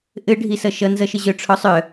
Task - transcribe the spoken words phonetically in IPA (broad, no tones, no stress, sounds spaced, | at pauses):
ʔ ɘ ɖʱ i s ʌ ʃ ʌ n z ʌ ʃ ɘ ʑ œ ʈ͡ʂʰ ɔ sˤ œ